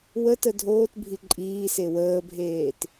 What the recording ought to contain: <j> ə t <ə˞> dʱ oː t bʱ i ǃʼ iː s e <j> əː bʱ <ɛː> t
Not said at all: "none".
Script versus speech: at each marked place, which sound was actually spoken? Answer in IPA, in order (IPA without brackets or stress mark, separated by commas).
w, ə, w, eː